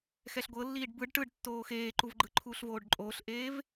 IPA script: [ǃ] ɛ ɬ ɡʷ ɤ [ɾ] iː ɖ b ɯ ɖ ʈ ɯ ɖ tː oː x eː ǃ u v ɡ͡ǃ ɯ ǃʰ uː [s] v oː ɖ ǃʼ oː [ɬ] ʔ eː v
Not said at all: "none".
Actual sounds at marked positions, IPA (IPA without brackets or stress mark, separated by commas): x, lː, ɬ, ɬ